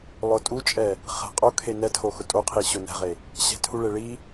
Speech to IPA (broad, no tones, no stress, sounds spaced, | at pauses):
lˠ ʊ tʼ u t͡ʃʼ ɛ | χ ɛ̤ qʼ o kʰ e n ɛ tʰ o x ʊ tʼ o qʰ i ɕ ʊ n ɛ̤ ʁ e | ɕ ɛ̤ tʰ u ɭ e ɭ i